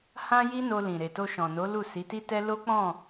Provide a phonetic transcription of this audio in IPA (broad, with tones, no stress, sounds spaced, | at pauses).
h ã˦ j i˦ n o˧ l ĩ˨ ɾ e˨ t o˧ ʃ ɔ̃˨ n o˨˦ l u˦˨ s i˨˦ t i˦ t ɛ˦ l o˦ k͡p ɔ̃˦˨